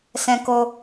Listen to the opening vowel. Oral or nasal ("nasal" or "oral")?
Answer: nasal